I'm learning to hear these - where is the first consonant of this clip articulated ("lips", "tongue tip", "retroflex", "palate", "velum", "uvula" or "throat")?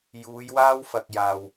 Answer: palate